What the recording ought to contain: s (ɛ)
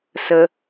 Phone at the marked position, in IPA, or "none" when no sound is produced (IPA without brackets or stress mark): ə